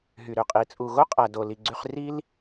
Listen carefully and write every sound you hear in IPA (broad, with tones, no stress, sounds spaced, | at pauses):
ɦ y˨ ɾ ø˨ qʼ i˨ t͡sʼ u˨ ɣ o˦ qʼ æ˨ d o˨ l i˨ ɡ͡ǀ y˧ χ r i˦ l